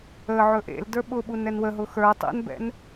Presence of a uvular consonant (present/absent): absent